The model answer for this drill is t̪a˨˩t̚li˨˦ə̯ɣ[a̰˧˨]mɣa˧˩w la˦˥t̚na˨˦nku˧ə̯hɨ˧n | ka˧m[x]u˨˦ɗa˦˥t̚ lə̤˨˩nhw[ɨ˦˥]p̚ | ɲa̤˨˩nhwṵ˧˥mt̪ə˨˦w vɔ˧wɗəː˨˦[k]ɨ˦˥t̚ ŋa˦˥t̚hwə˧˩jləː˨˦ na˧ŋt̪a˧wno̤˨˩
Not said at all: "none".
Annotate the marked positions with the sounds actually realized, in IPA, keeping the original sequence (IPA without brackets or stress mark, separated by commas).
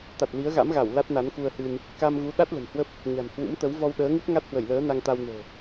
a̰˧˥, ɣ, ə˦˥, ŋ